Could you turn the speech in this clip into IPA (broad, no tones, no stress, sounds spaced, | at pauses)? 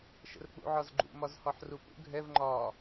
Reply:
ʃ ə̰ r k͡p ṵ ʕ ɒ z ɡ͡ǃ ṵ m ɒ z h ɒ ħ r u p ṵ ɡʱ ɛ v ŋ͡ǃ ɒ